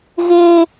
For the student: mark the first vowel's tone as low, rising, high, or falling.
high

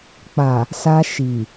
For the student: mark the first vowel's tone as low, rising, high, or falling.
low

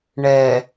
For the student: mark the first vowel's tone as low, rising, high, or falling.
low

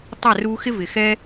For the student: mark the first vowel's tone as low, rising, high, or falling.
falling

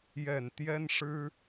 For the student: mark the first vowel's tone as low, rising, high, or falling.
low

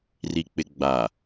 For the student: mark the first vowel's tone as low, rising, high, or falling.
low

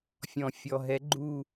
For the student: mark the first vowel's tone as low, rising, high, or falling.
low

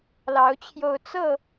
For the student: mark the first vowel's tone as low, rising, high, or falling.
rising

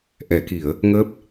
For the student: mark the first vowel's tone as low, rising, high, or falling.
low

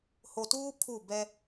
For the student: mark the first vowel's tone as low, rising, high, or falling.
low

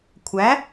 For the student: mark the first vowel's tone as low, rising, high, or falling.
rising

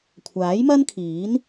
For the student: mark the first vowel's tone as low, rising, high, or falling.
rising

